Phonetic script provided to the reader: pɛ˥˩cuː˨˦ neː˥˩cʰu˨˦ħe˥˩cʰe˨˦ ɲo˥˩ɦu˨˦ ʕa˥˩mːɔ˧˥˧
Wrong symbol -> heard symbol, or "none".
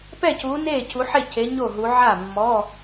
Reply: none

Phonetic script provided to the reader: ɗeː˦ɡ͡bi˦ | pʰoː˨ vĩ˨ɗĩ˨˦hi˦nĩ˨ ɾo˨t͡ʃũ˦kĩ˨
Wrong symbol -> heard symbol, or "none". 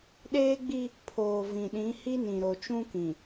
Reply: none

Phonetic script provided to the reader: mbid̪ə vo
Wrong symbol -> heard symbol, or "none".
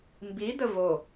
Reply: none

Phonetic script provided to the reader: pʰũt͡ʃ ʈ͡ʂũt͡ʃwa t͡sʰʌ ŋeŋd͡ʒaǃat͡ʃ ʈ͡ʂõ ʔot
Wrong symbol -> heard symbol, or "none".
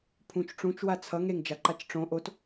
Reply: none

